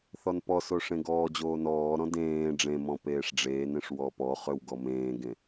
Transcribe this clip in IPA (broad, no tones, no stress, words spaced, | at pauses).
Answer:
θɔnpɔso ʂẽɡɔːd͡ʑoː nɔːɾɔ̃ dẽː ɖ͡ʐẽmɔ̃ peːʂɖ͡ʐeːnẽʂ wɔpɔχøw ɡɔmẽːɡẽ